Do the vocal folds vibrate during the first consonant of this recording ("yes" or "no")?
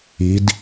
yes